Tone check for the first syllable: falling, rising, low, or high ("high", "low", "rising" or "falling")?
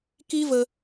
high